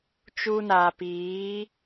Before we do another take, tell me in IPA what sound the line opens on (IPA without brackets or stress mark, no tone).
t͡ʃ